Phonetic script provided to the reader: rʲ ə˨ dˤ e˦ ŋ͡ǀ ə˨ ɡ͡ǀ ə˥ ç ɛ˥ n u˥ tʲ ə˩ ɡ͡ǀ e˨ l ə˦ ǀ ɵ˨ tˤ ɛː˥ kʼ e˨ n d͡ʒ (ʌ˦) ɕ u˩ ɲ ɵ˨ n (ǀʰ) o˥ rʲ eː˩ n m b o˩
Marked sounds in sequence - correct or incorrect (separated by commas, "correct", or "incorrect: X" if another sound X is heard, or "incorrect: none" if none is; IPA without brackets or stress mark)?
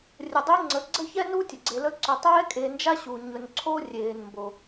incorrect: a˦, correct